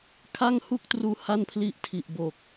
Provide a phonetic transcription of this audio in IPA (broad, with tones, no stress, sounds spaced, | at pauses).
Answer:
kʰ a˥˩ ŋ h u˥˩ k̚ t r uː˧ h a˥˩ n pʰ l i˦˥ ʔ tʰ i˨˩ ʔ b o˨˩ k̚